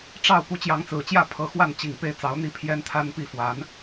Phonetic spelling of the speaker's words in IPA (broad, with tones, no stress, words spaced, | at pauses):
ʈ͡ʂɑ˥˩ʊ̯ pu˧˥t͡ɕjɑ˧˥ŋt͡sɹ̩˨˩t͡ɕjä˥˩ pʰɤ˧˥xwa˥˩n t͡ɕi˨˩ŋ pe˥˩ɪ̯t͡sɑ˧˥ʊ̯n̪i˥pʰjɛ˥n t̪ʰa˥npi˥fwa˧˥n